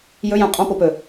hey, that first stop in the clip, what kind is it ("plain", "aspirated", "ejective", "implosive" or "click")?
ejective